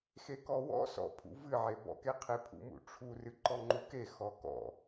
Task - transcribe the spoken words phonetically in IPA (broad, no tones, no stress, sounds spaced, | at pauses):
x e k ɔ w ɔ̰ s ɔ̰ pʰ ṵ v ɨ ʕ e b ɔ̰ k e qʰ e pʰ ṵ m ṵ ʈ͡ʂʰ u r ɨ ǃ ɔ ŋ͡ǃ u k e x ɔ k ɔ̰